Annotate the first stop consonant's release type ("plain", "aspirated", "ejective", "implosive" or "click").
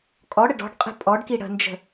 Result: ejective